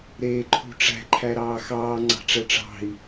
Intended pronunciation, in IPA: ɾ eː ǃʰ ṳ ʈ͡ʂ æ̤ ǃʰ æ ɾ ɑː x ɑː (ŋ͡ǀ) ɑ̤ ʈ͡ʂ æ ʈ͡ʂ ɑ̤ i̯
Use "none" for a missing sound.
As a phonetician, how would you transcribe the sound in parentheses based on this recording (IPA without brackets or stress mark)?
ŋ͡ǀ